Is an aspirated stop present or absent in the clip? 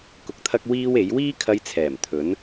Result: present